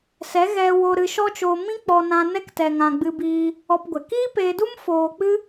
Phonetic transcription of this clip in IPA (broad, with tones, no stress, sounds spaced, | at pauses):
s ɛ˨˦ ɣ ɛ˧ w o˧ ɾ ɨ˧ ʃ ɔ˦ t͡ʃ oː˧ m ĩ˦ k͡p ɔ˧ n ã˧ n ɛ˧ k t ɛ˨ ŋ ã˨ ɡ͡b ɨ˧ b iː˧ | ɔ˧ p ɡʷ ɛ˨ k iː˦ p eː˧ d u˦ m f oː˧ k͡p ɨ˦